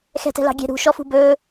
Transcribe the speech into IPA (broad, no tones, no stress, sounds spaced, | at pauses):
x ɛ̤ t ɛ̤ l ɑ̤ ɡʲ ɛ̤ ɾ ṳ ʃ ɔ f ṳ b ɵ